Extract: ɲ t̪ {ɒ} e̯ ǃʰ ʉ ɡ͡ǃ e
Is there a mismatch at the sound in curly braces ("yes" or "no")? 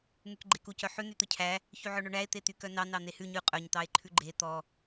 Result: yes